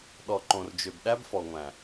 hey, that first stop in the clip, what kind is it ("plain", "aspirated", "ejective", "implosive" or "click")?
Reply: implosive